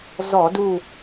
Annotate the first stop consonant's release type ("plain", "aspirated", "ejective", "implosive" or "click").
plain